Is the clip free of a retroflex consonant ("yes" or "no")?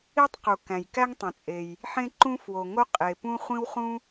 yes